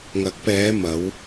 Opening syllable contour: rising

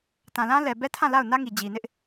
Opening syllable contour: low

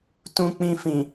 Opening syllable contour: low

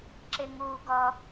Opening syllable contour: high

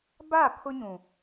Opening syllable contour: falling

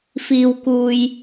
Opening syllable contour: low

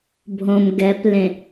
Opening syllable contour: low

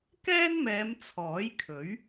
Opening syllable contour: high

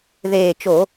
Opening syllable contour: low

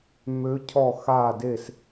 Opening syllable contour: rising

